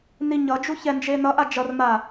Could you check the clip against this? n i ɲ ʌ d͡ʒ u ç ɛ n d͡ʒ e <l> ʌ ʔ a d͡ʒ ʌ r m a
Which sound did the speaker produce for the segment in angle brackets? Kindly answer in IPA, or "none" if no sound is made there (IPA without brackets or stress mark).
n